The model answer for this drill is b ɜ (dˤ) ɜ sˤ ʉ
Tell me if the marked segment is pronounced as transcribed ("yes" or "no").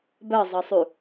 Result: no